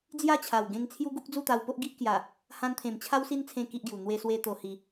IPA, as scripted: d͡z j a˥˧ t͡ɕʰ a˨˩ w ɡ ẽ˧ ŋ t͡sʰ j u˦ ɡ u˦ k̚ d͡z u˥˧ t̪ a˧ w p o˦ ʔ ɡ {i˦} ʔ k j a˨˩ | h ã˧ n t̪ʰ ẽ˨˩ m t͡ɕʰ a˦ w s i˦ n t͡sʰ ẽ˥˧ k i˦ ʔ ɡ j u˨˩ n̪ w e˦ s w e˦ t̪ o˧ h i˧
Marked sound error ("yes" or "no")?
no